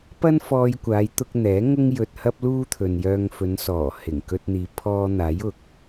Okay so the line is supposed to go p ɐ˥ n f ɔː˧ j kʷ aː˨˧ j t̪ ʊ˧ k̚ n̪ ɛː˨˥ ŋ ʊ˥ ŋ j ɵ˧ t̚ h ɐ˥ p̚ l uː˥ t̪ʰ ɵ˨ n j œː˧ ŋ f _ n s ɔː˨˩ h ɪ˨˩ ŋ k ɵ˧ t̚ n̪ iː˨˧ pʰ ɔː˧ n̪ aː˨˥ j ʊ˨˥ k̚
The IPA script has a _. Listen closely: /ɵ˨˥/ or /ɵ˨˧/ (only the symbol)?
ɵ˨˧